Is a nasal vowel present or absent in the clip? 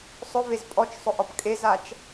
absent